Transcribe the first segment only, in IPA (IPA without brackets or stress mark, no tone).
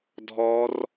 dʱ